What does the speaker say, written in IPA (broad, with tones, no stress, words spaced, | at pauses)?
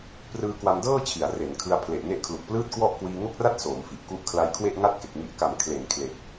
prɯː˦˥kwa˧mdɤː˥˩t͡ɕʰi˩˦a̯ re˩˦nkʰɯ˧a̯ pʰle˨˩ʔne˦˥ʔkʰlu˨˩k̚plɯː˥˩t̚ kwɔ˥˩ʔ kwiː˧ŋo˥˩k̚ra˥˩t̚ soː˩˦mfi˨˩ʔ ku˦˥ʔ kʰla˧jkʰwe˥˩ʔŋa˥˩t̚ke˨˩k̚ ŋi˨˩ʔka˩˦m kʰle˩˦n kʰle˨˩k̚